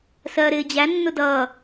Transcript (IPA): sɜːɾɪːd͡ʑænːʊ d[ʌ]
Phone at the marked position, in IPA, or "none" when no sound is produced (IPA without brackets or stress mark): ʌ